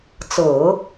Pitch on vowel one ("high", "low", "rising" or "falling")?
low